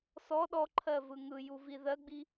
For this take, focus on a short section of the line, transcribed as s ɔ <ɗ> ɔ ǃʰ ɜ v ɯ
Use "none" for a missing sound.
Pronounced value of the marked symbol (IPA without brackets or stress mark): ɗ